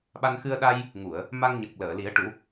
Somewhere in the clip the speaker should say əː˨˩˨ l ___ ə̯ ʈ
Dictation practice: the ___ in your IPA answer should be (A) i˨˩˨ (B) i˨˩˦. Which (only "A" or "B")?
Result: B